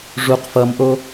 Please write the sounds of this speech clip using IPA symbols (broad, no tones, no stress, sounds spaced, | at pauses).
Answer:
ʐ u q f ʌ m ʔ o